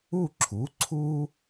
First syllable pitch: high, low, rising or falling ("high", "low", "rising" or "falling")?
falling